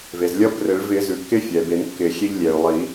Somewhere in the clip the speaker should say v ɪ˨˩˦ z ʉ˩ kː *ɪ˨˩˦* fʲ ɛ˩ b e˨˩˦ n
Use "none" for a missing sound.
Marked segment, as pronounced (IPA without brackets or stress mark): ɪ˦˥